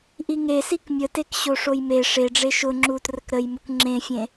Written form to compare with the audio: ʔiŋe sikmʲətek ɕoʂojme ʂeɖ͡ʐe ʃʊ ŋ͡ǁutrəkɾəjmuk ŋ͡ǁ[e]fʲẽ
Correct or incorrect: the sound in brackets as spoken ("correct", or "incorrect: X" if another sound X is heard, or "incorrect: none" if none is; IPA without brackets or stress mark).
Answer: incorrect: ẽ